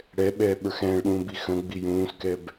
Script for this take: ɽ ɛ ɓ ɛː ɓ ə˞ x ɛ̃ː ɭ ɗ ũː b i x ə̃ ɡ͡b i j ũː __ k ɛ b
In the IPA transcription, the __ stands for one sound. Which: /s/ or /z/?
s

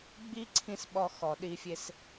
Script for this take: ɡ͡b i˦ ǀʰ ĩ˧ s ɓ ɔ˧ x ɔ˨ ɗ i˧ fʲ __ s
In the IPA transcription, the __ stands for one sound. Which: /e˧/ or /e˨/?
e˧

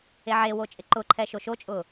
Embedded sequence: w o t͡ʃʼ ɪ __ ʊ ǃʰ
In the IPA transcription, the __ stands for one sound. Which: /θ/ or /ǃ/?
ǃ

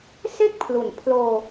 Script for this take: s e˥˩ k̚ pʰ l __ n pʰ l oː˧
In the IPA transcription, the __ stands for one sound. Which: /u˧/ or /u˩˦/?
u˩˦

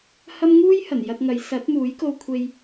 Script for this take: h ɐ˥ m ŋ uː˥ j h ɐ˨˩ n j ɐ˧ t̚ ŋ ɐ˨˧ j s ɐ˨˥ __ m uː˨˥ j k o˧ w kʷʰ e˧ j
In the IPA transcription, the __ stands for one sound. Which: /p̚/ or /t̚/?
t̚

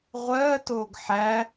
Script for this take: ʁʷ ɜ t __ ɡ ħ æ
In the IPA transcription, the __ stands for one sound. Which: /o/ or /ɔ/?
o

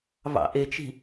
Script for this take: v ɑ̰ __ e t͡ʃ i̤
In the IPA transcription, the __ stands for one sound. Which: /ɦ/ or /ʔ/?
ʔ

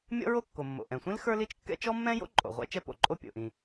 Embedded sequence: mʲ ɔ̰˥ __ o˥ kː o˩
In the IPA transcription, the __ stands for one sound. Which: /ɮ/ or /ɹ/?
ɹ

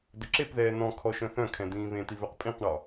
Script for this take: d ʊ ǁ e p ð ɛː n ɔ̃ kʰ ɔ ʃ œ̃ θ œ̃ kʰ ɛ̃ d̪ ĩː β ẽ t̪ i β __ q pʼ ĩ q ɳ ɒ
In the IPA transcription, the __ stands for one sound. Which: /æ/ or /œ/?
œ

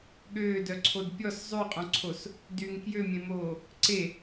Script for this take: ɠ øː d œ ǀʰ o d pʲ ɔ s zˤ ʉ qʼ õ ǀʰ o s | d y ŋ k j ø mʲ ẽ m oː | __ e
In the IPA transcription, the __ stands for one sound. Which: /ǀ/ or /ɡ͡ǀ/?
ǀ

